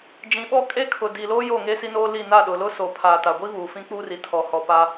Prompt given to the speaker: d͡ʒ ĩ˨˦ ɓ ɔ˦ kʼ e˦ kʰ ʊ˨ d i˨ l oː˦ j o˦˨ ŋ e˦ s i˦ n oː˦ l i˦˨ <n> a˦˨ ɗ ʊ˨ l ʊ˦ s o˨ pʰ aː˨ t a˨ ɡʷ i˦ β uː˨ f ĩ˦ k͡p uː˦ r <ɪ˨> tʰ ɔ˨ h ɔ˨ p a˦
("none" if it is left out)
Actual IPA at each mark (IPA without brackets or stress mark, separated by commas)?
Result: n, i˨